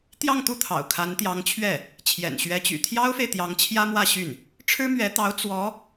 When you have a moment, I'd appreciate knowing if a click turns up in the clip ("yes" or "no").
no